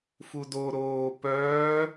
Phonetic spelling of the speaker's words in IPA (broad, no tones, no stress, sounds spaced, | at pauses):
f u d o ɾ oː p œː